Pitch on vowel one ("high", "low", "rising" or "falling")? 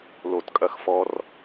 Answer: low